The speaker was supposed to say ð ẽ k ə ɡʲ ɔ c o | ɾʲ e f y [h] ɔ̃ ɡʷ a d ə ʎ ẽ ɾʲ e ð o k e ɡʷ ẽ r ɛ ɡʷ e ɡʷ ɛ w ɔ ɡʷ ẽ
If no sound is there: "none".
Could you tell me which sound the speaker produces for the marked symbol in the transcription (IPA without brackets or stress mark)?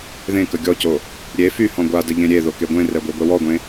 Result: h